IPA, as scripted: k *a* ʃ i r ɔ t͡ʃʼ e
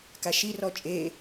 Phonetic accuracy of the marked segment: correct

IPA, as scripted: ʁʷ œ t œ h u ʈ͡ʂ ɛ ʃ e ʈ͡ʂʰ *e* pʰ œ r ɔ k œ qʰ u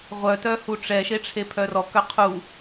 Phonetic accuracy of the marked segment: correct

